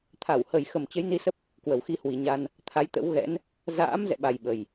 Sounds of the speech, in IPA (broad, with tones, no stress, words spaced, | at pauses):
t̪ʰa˧˩whə˨˩jxə˨˩m t͡ɕə˨˦jni˧ sə˦˥p̚ | kwə˨˩wxi˧ hwi˨˩ɲa˧n | t̪ʰa˨˦jt̪ə̰˧˥wɣɛ̰˧˥n | za̰ː˧˥m zɛ̰˧˨ɓa˨˩j ɓə˨˩j